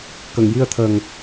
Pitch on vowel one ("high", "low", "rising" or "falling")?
low